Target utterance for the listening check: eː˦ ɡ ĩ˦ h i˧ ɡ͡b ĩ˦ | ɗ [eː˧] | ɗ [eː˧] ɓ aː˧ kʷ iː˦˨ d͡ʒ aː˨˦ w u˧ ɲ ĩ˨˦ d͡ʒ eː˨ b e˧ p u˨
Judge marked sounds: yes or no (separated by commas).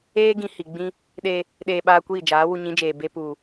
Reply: no, yes